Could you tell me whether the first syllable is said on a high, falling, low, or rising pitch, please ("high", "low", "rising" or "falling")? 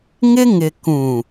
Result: high